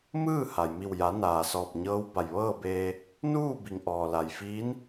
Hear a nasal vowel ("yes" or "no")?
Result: no